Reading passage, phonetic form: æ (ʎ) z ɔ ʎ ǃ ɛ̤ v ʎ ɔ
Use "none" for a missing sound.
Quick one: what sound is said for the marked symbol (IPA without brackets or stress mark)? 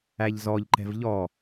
ʎ